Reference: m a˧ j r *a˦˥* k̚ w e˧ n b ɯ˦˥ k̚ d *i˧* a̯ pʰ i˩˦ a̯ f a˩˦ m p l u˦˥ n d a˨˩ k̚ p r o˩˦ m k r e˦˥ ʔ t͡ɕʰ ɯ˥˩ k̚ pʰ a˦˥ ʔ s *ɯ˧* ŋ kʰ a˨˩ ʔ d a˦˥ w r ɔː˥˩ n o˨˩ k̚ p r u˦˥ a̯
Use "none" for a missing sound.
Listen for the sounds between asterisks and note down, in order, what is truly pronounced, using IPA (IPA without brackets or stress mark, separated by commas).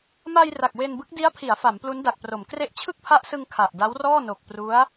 a˨˩, i˦˥, ɯ˧